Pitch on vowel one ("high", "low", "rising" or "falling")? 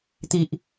low